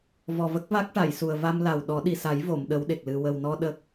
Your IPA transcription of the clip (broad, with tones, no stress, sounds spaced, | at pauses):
v ɔ˨˩ v ə˦˥ k̚ v a˦˥ k̚ ʈ a˨˩˨ j s u˨˩ ə̯ v a˧ m l a˨˩ w ɗ ɔ˨˩˦ ɗ i˨˩ s a˨˩˦ j v o˨˩˨ m ɗ ə˧˥ w ɗ e˨˩ k̚ l ɨ˧ w ə˨˩ w n ɔ˧ ɗ ə˦˥ k̚